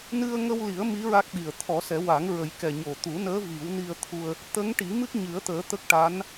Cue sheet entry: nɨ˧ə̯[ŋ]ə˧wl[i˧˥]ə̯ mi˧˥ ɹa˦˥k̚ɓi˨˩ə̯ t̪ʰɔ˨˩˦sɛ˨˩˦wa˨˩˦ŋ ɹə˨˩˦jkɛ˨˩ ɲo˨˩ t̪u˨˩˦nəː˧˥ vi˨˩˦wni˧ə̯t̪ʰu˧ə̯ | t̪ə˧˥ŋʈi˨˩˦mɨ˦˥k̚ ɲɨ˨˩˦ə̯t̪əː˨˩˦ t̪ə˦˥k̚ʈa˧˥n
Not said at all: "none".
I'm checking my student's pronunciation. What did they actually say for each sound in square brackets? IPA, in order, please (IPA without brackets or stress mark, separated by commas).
ŋ, i˨˩˦